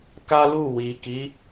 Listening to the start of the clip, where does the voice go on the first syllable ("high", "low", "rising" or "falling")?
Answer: high